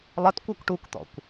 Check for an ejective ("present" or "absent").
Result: absent